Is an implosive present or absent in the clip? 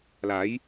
absent